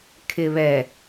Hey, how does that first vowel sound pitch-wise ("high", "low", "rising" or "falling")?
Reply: low